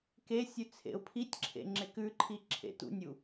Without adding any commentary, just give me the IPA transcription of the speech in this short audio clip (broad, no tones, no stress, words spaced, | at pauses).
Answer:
kesʲʉt͡sʰḛʊ̯ pʰitʲǁʰḛŋ͡ǁek ʉǃʰiǁʰḛ tṵnʲu